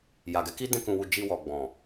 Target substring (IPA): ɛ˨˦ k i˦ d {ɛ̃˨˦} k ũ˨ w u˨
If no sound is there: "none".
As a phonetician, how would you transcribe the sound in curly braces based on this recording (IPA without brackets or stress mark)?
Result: ɛ̃˧